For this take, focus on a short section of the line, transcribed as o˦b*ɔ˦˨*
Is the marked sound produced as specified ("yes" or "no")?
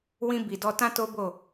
no